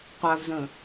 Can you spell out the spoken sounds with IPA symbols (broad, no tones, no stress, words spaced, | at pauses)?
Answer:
qʷavzə̃ː